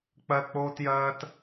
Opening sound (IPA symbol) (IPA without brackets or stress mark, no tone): k͡p